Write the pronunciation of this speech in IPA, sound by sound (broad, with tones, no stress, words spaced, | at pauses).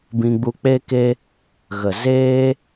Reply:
bĩ˧ɡ͡bu˧ k͡pe˦ke˦ | ɣə˨zeː˦